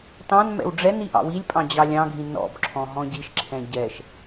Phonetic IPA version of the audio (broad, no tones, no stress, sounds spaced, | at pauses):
t ɑ̃ n m ɛ̰ w ɖ͡ʐ ɛ n i ʔ ɑ̰ w i lʲ pʼ ɑ̃ d͡ʑ ɑ lʲ ɑ̃ ɡʱ ĩ n ɔ̰ b ǁʰ ɔ̃ ɦ ɔ̃ ɟ i ʃ ǁʰ ɛ̃ ɟ ɛ ʃ